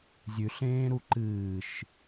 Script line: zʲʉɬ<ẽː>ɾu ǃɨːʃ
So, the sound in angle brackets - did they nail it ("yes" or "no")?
yes